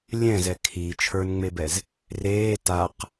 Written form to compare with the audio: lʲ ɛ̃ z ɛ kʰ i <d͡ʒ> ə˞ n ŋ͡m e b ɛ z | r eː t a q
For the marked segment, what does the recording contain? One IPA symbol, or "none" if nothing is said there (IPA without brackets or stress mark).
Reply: t͡ʃʰ